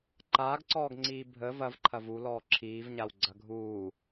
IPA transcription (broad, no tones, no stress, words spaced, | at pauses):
ǃaːɡǀɔːɡŋ͡ǀiː bʱə vɐvǃʰɐv ulɔː ǁʰiːvɲaw ɡ͡ǀɐɡʱuː